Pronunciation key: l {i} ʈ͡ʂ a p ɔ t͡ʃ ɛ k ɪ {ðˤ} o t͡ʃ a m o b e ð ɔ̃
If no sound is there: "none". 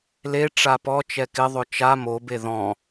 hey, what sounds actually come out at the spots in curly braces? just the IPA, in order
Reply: e, ðˤ

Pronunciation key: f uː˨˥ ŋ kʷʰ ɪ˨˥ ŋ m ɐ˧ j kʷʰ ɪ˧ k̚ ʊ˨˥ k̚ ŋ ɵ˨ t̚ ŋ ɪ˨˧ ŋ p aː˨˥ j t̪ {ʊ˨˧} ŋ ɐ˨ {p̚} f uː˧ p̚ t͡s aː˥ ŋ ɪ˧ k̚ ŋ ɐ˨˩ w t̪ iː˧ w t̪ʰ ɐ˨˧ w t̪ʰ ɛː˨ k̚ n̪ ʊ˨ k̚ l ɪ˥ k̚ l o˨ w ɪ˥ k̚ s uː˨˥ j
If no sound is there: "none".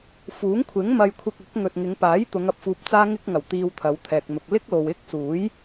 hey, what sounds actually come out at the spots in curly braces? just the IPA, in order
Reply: ʊ˨˧, p̚

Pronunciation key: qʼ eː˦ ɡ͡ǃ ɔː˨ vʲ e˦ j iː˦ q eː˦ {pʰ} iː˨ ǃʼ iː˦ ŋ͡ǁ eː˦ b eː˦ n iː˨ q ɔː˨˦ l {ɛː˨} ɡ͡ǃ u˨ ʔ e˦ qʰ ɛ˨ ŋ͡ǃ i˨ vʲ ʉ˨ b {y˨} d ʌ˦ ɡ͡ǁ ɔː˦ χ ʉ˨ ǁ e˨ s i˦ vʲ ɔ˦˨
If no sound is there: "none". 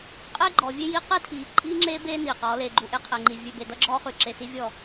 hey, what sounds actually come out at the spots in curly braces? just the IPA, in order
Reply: tʰ, eː˨, e˨

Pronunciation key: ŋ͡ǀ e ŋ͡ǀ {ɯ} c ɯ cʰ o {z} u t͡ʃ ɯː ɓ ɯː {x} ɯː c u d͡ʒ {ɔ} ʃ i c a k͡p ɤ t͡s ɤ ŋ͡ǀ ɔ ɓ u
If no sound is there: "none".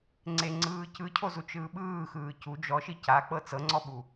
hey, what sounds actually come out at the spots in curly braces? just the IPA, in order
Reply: ɯː, z, x, ɔ

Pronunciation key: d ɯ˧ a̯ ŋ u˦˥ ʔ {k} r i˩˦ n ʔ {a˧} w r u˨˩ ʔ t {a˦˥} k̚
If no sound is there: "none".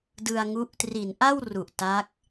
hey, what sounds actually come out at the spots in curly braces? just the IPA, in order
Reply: t, a˥˩, a˦˥

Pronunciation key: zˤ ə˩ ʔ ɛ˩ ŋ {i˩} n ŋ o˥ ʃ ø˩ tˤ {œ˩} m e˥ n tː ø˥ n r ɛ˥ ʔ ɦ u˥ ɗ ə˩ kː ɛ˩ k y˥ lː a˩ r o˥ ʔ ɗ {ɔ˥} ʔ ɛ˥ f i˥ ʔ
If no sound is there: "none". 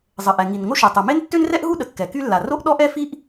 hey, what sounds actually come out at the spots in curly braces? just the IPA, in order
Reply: i˩, œ˩, ɔ˥

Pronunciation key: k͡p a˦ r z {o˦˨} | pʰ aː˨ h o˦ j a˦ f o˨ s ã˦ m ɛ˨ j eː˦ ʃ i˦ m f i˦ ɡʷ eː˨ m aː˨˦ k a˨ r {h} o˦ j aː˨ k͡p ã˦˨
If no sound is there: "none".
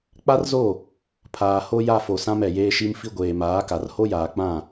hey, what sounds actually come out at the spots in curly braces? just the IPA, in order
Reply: o˦˨, h

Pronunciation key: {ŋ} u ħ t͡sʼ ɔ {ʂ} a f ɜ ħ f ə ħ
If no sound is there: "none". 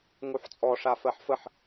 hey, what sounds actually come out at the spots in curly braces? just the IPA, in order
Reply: ŋ, ʂ

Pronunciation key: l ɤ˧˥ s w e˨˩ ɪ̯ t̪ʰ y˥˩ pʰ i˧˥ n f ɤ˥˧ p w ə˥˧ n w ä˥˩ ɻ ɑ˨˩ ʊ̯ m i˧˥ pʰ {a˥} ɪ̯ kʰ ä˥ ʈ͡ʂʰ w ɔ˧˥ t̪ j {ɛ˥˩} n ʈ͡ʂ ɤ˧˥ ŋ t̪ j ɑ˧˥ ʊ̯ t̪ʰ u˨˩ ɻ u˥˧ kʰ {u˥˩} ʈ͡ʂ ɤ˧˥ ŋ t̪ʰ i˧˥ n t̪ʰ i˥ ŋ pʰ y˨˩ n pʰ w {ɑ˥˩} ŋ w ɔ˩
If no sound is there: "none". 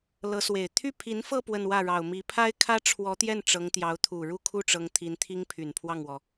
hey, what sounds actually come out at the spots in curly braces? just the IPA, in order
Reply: a˥, ɛ˥˩, u˥˩, ɑ˥˩

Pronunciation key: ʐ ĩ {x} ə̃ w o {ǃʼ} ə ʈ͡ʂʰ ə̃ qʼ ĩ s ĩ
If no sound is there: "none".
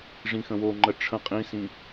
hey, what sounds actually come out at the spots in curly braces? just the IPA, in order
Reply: x, ŋ͡ǃ

